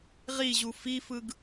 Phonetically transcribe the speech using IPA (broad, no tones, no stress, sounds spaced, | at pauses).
ʁ i ʑ u f i f ɯ ɡ